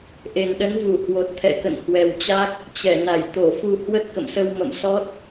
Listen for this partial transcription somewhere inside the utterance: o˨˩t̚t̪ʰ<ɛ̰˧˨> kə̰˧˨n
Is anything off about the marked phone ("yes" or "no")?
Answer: no